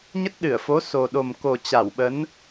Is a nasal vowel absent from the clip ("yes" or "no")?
yes